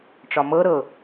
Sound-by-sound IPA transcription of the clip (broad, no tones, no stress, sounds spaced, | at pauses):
ʈ͡ʂ ɒ m ɤ ɾ ɤ